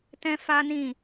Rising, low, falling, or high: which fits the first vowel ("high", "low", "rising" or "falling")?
high